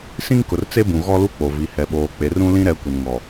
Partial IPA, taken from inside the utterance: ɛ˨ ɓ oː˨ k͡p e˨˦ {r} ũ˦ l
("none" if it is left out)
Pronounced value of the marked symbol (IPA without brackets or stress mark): r